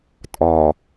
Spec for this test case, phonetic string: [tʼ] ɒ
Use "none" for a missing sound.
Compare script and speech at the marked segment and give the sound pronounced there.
tʼ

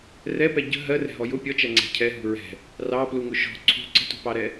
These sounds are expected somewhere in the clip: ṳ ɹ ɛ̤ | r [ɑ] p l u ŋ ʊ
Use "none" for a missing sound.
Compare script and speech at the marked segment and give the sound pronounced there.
ɑ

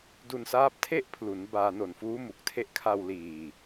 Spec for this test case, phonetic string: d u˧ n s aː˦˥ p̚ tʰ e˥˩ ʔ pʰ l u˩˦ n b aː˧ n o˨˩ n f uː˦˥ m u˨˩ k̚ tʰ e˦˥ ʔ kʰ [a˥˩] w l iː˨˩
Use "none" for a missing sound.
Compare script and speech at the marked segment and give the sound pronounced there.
a˧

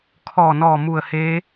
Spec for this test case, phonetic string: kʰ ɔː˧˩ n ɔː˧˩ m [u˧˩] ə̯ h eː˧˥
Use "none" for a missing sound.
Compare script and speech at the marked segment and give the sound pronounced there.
u˧˩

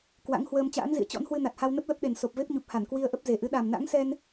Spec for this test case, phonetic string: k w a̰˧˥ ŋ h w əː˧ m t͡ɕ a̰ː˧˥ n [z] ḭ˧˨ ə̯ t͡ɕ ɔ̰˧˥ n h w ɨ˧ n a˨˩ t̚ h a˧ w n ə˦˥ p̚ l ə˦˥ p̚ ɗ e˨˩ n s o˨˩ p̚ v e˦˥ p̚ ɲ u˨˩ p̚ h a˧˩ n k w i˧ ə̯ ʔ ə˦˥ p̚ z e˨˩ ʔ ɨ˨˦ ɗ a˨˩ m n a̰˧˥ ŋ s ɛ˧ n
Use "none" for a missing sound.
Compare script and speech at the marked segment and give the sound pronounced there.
z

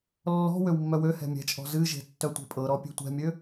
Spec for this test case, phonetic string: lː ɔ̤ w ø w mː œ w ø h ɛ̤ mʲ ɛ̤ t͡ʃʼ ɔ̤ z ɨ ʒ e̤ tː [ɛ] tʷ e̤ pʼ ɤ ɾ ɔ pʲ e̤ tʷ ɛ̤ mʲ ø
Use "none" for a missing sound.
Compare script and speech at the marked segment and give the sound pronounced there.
œ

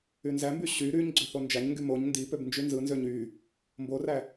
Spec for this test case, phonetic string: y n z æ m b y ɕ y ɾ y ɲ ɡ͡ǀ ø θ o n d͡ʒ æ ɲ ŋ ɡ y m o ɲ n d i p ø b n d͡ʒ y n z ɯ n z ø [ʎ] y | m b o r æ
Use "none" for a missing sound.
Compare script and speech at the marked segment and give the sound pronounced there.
ɲ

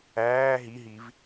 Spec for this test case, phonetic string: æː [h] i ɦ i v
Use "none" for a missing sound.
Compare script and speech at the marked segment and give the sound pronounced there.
ɦ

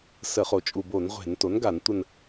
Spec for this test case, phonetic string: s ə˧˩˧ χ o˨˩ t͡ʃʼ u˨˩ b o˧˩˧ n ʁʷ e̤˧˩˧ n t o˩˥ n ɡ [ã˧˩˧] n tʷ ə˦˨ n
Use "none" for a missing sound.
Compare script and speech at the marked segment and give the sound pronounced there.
a˧˩˧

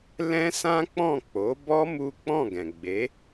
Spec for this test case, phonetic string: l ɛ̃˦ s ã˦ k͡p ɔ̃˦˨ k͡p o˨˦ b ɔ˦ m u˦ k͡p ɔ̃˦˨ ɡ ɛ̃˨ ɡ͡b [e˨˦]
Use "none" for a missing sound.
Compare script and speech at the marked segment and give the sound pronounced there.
e˨˦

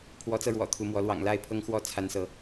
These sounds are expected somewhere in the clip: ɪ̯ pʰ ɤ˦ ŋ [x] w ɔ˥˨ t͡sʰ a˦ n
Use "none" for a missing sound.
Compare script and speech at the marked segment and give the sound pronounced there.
x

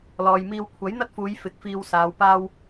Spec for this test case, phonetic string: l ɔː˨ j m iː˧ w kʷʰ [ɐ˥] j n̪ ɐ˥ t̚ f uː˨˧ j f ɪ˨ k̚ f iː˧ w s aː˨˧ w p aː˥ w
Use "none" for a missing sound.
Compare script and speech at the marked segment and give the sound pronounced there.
ɐ˨˥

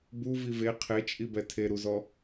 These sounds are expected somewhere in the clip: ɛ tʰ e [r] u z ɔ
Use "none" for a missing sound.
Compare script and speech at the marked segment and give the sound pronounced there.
ɾ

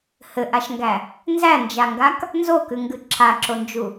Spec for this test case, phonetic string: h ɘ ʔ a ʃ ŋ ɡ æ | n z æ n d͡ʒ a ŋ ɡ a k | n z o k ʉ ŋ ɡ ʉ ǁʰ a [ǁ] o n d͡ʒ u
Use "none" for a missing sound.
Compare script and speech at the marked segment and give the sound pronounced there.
ǁ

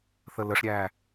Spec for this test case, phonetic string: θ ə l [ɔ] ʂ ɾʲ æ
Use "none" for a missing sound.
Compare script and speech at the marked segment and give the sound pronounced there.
ə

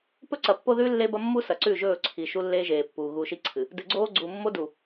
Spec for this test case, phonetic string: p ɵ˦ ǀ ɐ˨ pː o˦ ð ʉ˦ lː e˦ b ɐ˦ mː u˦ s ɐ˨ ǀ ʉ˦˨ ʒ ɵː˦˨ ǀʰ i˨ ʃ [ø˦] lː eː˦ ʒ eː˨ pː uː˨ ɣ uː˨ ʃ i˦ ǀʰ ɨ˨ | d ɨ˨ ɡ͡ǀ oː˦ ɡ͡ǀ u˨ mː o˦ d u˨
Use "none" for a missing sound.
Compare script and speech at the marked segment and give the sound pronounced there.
u˦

